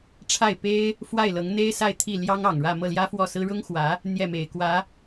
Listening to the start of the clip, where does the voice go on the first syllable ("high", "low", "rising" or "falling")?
falling